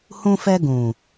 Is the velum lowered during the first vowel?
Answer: yes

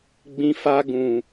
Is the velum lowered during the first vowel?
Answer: yes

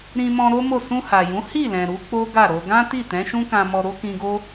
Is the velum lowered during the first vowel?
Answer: yes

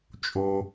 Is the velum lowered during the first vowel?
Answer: no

